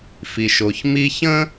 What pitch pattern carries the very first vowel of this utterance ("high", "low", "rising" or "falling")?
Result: low